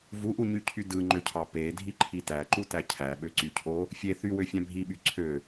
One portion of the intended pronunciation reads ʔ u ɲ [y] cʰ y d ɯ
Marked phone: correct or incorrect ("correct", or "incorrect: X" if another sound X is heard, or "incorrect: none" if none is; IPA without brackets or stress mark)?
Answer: correct